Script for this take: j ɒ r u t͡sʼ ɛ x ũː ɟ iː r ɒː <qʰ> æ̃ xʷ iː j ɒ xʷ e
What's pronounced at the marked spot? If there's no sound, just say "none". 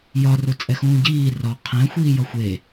qʰ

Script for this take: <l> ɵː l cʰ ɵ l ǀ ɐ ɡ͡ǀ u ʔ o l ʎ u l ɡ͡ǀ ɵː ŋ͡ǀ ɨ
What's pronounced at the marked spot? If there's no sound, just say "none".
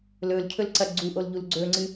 l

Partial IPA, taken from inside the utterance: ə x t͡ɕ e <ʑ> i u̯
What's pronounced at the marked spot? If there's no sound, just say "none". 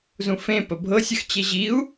ʑ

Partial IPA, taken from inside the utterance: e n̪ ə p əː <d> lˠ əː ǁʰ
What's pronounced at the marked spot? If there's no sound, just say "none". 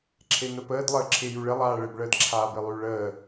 d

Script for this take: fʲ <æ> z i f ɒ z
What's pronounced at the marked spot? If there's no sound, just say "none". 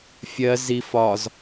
ɜ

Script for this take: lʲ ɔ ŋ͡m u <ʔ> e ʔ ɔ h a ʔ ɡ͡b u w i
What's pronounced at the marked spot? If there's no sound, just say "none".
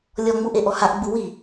ʔ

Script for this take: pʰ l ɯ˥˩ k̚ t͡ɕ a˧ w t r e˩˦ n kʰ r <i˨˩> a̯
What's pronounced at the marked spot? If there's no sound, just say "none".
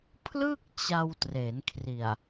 i˨˩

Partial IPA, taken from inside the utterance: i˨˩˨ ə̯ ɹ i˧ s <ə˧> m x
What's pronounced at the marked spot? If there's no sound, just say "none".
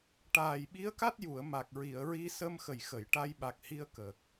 ə˧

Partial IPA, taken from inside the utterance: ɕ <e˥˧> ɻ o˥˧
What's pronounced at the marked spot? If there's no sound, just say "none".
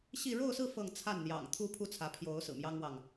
i˥˧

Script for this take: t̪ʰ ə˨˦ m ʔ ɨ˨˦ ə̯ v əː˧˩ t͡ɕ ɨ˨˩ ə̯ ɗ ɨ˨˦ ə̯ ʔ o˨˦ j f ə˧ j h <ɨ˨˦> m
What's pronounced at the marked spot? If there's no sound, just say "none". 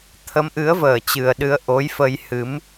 ɨ˨˦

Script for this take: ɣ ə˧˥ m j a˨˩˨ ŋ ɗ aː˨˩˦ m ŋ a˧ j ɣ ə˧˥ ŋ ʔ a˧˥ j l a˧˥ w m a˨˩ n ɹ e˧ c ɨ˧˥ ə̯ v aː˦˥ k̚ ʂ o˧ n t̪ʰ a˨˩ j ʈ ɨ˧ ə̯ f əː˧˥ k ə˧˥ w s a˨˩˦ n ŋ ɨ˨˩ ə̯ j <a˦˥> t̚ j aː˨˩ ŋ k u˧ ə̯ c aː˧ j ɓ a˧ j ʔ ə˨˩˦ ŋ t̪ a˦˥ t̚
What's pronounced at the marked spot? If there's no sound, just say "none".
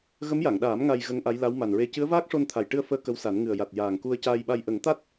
a˨˩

